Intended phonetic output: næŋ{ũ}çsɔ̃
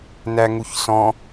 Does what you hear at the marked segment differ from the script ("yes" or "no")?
yes